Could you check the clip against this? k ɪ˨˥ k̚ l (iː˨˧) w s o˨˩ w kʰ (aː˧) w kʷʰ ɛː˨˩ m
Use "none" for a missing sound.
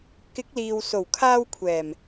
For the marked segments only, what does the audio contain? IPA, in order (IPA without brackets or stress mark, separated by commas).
iː˨, aː˧